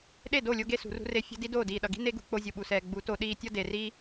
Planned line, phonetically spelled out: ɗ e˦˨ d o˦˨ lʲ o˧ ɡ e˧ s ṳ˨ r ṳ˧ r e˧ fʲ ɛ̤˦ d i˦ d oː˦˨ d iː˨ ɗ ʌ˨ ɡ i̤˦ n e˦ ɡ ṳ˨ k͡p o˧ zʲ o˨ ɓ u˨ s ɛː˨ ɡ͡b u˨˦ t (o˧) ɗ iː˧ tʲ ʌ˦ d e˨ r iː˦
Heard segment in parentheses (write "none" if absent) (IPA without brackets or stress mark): o˧